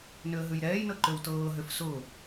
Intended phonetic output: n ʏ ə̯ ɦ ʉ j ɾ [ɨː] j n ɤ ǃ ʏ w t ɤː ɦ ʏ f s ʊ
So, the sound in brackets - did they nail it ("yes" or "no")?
no